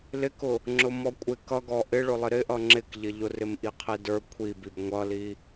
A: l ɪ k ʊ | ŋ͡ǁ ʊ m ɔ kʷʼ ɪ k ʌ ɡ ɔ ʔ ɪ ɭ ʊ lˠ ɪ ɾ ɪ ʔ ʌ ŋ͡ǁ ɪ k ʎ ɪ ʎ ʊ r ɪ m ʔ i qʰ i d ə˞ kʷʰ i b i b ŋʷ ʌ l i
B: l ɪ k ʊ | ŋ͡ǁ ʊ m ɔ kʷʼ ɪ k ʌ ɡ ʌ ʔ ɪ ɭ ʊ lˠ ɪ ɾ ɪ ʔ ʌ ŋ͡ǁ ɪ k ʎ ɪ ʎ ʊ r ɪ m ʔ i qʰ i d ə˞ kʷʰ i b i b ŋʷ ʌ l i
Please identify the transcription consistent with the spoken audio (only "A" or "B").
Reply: A